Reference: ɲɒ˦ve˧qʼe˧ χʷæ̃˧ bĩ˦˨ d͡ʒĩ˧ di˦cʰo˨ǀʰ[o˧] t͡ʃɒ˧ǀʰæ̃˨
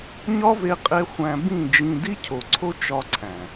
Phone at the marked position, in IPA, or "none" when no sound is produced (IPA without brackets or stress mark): o˦